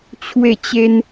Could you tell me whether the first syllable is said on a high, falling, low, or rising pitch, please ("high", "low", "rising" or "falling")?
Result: falling